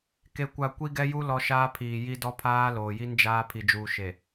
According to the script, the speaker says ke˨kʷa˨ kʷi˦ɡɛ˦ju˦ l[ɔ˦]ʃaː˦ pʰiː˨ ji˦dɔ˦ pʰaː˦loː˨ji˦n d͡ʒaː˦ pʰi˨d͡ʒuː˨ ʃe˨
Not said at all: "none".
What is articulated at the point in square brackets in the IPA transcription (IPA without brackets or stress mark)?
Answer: ɔ˦